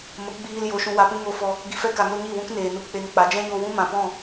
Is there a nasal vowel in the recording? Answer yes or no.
yes